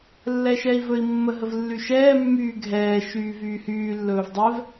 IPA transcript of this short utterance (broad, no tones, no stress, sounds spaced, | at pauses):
lː ɛ ʃ ɛ i̯ v ɵ i̯ mː ə ɦ ə v lː y ʃ ɛː mː yː ɡʱ ɛː ʃ yː v yː h yː lː ɵː v dˤ ɛ v